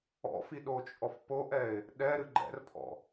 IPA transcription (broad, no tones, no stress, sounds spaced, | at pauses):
ɔ̰ f i ɗ o t͡ʃʼ ɔ f p o ʔ ɛ ɪ̯ | ɗ ɛ ɾ ɨ ɡ͡ǃ ɛ̰ r pʰ ɔ̰